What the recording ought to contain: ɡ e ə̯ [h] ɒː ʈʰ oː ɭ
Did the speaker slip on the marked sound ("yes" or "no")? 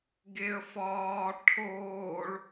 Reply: yes